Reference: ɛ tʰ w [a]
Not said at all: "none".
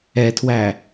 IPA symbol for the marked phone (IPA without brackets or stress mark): æ